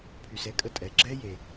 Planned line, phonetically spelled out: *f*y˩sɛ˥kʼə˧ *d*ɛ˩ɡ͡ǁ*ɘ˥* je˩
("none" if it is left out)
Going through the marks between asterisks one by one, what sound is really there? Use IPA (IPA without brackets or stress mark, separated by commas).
pʰ, tʼ, ɛ˥